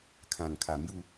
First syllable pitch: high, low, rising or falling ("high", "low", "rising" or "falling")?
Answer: low